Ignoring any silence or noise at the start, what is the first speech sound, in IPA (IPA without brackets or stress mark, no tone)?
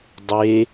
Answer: dˤ